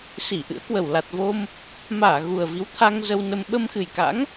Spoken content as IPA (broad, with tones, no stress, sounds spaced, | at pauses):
s i˧˩ ʔ ɨ̰˧˥ ə̯ k w ə˨˩ w l a˨˩ t̚ v o˧ m | m aː˧˩ ɣ u˨˩ ə̯ v i˨˦ w t̪ʰ a˧ ŋ z ə˧ w n ə˧ m ɓ ə˧ m x ɨ˨˩ j k a̰˧˥ ŋ